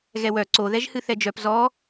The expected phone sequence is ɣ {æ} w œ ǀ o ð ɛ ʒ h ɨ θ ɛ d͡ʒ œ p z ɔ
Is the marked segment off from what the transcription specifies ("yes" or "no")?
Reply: yes